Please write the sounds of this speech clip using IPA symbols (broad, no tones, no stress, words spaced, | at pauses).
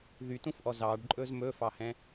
ðytũfʔɔ zɑɖǃʼɵz mɵfɑhɛ̃